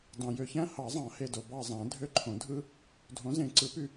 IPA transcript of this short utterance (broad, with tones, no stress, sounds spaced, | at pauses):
d ɑ̃˨ j ø˨ ç æ̃˦ h ɑ˨˩˦ zˤ ɑ̃˨˩˦ h e˨ d o˨ b ɑ˦˨ zˤ æ̃˨˩˦ dʱ ø˦˨ ǃʰ õ˨˩˦ dʱ ɯ˦ | dʱ õ˨˥ z ẽ˨˩˦ ǀ ɯ˨˩˦ p y˦˨